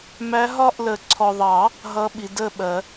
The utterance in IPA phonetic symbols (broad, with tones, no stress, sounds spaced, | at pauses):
m æ˧˥ ɦ ɒ˥˧ ʔ l ə˨˩˦ ǀʰ ɔ˨ ðˤ ɑ˨˩˦ | ɦ ʌ˧˥ ɓ i˨ d ə˥˧ ɓ ɜ˨˩˦